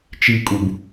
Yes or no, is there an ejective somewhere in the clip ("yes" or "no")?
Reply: yes